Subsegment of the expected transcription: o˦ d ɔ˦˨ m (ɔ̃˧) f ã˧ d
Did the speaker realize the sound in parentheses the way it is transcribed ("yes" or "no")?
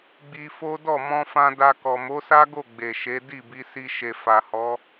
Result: yes